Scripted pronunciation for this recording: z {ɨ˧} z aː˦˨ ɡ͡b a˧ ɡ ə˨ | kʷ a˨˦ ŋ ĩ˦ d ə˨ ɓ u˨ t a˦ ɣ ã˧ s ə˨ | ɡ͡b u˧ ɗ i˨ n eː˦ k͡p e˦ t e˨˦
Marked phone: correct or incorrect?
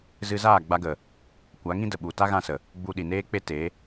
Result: correct